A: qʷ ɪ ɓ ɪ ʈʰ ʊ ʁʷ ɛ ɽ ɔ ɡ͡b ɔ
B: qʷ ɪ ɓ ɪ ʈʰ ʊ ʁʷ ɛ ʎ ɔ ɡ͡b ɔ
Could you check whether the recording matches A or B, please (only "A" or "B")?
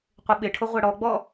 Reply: A